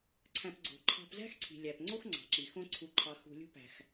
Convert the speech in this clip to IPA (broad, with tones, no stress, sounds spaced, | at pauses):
ǀʰ æ̃˨ p ɡ͡ǀ o̤˩ ǃʰ ɑ̤˨ p z æ̤˦ x ǀʰ i̤˩ lʲ æ˩ p ŋ͡ǀ o˦ x ŋ͡ǀ ɑ̤˩ ǁ i˩ x õ˨ ǀʰ u˩ ǃʰ ɑ˩ x ṳ˨ lʲ ṳ˦ p æ̤˩ x